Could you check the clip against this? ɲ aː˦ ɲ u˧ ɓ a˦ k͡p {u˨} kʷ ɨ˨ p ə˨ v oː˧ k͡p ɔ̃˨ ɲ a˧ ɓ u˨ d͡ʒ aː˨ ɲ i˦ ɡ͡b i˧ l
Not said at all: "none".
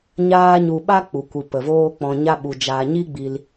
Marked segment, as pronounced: u˨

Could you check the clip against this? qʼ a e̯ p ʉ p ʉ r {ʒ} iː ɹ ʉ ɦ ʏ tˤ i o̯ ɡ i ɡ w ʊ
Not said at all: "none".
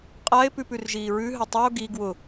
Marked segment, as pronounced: ʒ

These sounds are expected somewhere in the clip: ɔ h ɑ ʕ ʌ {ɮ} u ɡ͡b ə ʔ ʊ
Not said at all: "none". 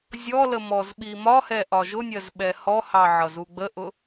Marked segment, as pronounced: z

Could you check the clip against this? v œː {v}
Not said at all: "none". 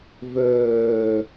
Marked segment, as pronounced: none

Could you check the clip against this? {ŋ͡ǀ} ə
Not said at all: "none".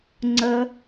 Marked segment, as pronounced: ŋ͡ǀ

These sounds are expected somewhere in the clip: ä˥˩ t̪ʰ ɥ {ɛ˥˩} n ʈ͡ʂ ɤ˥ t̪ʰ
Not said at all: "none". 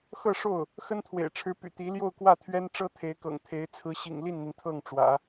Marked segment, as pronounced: ɛ˥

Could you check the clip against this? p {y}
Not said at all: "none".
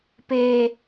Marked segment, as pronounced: e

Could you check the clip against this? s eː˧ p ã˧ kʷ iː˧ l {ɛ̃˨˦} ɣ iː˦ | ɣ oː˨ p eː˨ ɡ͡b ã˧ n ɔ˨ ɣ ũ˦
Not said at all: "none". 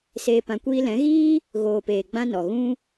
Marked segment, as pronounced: ɛ̃˨˦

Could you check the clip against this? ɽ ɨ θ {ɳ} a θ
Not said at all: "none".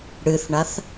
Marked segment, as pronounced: ɳ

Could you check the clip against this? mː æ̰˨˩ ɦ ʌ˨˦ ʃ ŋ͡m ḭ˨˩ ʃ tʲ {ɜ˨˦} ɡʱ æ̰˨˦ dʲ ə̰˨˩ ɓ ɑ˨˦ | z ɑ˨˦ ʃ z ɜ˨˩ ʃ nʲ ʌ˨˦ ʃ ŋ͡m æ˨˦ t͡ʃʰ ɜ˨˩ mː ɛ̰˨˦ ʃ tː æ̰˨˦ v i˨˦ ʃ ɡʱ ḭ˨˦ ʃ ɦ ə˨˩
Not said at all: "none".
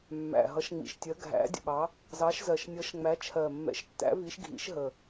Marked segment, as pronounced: ɜ˨˦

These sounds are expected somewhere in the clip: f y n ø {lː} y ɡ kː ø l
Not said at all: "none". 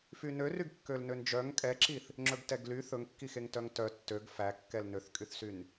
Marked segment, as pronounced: r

